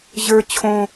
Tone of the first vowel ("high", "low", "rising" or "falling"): high